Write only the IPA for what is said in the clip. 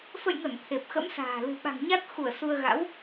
fə̰˧˨jŋə˧˩n t̪ʰe˨˩p̚xə̰˧˥msa̤ː˨˩ lɨ̤˨˩ɓa̤˨˩ŋɲa˦˥t̚xu˧˩ə̯ su˧ə̯ɣa̰˧˥w

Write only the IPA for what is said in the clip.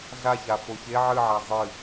ɮaça foçe ʕɨʕa zˤɨ

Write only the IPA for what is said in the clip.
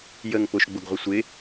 jəŋ pʊʃ ɡ͡bʊɡʁʷəsʷɪ

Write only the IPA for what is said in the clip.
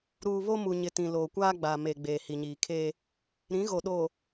ɾuː˨βo˦mu˨ɲɪ˨ tĩ˨loː˨kʷaː˦ɡ͡baː˨ me˨ ɡ͡beː˨hi˨ɲiː˨kʰeː˦ | ɾĩ˨˦ɣo˨ɗoː˨

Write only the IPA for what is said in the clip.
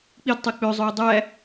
k͡pid tˤik͡pø zˤøɪ̯dˤæ

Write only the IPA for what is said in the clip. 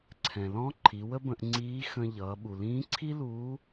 ǀʰɛ̃˩lɔ̃˧˥ ǃʰi˩˧wə˥bə̃˧ʔ ŋ͡ǀiː˧˥xə̃˧ʎʌː˩˧ ɓu˩lĩː˧˥ǀʰi˥luː˧˥

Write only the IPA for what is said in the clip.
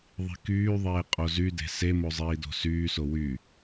ðˤi̤kyːðˤeː qʼozyde̤ semo zˤiːdo̤syːso wy

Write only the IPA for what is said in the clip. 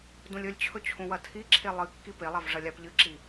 dũlʲɵlʲt͡ɕʰɵ t͡ɕʰũwɐtʰiǁʰe lˠɨ kːipelˠav ʐɐlʲapʎɨǁi

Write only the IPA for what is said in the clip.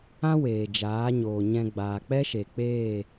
ã˦ weː˨ d͡ʒaː˨˦ɲoː˨ɲɛ̃˧ ɡ͡baː˨k͡pɛ˦ʃe˨k͡peː˦˨

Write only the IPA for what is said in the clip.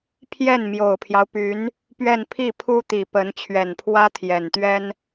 pʰjɛ˥˩nmjo˨˩ʊ̯pʰjɑ˦ʊ̯py˧˥n | pɥɛ˥˧n pʰi˥˩pʰu˥t̪i˨˩ pə˧˥n t͡ɕʰɥɛ˨˩npʰwä˥t̪ʰjɛ˨˩nt̪ɥɛ˥n

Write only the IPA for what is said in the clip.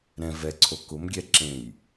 ɾɛ̃ vɛǀʰo kʊmɡʲɛ ǁẽj

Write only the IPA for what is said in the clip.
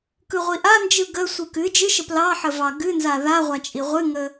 kɯʁʷiʔand͡ʒɯ ɡəsʷɯ kɨ d͡ʒɨʃə plɑħə vɑɡɨnza ðaʁʷa t͡ʃʼiʁʷɨŋə

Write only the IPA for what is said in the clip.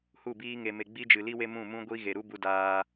hu˦˨biː˦ŋe˧me˧ ɡ͡bi˦d͡ʒɨ˨ li˦we˦ mũ˦˨mũ˦ɡʷi˦ ɣe˨ɾu˦ bu˧ daː˧

